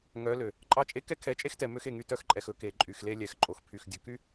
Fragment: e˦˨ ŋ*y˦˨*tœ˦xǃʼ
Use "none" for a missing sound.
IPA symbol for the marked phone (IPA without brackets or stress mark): y˦˨